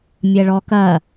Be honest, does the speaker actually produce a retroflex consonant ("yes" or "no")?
yes